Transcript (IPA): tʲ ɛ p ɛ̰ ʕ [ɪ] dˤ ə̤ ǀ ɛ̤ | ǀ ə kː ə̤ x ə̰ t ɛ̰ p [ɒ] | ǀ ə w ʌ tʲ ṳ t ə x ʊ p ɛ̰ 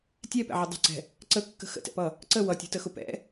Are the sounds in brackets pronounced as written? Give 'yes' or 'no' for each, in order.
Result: yes, no

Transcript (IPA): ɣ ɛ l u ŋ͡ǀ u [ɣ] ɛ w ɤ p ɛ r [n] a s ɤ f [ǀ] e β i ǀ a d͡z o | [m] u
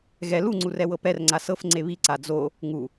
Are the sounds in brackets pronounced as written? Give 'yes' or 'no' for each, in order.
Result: no, no, no, no

